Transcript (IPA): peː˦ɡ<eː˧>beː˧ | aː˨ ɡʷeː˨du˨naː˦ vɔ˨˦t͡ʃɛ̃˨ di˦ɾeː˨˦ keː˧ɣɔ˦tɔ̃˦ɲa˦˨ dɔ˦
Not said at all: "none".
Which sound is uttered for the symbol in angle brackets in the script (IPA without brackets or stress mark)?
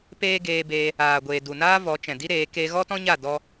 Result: eː˧